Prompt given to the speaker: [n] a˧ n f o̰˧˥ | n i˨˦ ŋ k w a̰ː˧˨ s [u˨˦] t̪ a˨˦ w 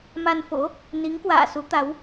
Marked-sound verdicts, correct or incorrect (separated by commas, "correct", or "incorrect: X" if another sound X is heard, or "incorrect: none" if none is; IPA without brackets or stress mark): incorrect: m, correct